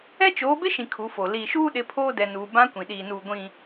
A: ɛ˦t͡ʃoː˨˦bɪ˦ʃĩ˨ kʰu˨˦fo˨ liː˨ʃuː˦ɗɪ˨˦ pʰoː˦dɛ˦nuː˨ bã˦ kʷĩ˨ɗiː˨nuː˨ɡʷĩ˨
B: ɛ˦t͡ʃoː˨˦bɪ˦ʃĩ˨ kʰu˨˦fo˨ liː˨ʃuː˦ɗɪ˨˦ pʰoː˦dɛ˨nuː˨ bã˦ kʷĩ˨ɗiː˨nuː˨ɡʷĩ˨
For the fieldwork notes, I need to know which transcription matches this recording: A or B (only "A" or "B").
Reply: B